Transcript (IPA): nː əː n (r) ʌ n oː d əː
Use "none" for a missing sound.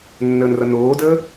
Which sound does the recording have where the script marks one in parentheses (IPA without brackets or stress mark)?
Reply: r